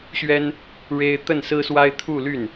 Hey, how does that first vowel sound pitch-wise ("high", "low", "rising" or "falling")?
high